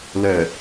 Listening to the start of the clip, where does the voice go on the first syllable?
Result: low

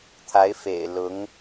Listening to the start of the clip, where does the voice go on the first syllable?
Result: rising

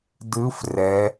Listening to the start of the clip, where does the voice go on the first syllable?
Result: rising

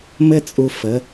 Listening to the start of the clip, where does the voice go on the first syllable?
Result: high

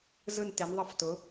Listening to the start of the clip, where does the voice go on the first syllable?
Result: falling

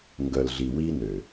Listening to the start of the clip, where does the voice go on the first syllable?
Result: low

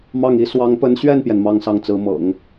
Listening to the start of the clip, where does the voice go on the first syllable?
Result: falling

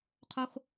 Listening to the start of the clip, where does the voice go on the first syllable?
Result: high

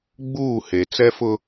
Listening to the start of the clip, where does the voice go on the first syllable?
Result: falling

